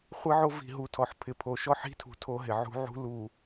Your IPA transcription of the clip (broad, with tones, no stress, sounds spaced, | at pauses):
χʷ ɪ˦ ʕ o˦ v i̤˨ ɦ u˨ tʰ ɔ˨ ħ pʰ ɪ˨ pʰ o˨ ʃ ɔ˦ ħ i̤˦ tʰ ṳ˨ tʰ o˦ ɦ ɪ˨ ʕ ṳ˦ ʕ ṳ˦ l u˨